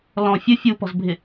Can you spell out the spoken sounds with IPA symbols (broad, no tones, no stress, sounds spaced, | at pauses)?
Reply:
l ɔ̃ fʲ ʊ fʲ u p ɔ̤ z bʱ ɪ